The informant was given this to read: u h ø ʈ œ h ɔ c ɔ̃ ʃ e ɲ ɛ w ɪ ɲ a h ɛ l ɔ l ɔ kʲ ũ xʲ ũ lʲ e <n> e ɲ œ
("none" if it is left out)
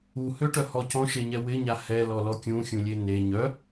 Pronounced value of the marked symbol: n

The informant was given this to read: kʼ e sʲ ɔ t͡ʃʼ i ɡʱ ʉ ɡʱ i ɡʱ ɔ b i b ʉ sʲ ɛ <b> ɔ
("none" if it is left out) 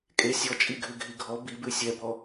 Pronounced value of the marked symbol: b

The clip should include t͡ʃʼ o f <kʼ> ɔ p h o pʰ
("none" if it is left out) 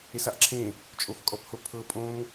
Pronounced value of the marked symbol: kʼ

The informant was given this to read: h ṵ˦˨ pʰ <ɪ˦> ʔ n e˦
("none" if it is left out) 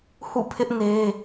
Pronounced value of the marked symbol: ɪ˦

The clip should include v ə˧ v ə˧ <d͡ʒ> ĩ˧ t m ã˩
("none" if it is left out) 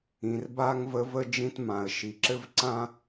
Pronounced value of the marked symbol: d͡ʒ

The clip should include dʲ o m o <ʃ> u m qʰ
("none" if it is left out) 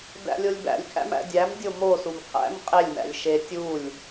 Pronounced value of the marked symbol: s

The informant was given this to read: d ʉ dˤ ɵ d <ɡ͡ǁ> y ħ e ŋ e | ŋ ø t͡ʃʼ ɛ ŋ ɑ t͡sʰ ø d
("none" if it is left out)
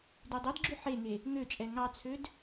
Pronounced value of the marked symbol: ɡ͡ǁ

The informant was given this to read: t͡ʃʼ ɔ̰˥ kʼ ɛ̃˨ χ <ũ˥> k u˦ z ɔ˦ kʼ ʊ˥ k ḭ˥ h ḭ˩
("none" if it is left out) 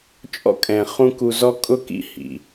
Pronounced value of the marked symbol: ũ˥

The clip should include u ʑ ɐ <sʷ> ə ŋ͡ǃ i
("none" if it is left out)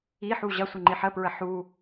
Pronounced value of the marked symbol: sʷ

